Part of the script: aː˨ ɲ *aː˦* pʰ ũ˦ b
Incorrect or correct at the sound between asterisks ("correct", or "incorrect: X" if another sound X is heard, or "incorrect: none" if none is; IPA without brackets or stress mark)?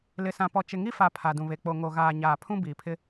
incorrect: aː˨